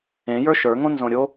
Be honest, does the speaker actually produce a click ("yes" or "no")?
no